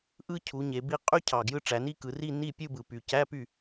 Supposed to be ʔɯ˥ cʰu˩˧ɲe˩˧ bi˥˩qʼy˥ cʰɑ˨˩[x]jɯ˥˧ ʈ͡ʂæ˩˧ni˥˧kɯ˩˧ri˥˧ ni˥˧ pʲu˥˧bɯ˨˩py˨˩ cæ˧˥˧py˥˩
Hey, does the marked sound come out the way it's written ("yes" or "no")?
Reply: no